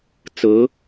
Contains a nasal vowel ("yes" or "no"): no